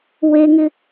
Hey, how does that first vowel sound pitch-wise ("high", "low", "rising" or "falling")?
high